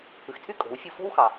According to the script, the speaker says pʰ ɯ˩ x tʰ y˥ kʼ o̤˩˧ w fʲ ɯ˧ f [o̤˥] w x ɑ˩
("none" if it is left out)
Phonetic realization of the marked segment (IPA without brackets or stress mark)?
o̤˥